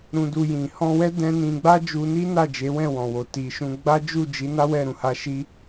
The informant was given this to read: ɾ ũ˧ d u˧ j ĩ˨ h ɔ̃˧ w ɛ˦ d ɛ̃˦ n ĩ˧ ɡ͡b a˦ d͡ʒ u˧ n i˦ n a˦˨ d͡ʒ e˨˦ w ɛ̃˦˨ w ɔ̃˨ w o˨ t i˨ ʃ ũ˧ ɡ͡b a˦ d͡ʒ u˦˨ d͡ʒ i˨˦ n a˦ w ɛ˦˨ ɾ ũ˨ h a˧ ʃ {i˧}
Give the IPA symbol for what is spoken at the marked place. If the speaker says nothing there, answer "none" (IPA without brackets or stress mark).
i˧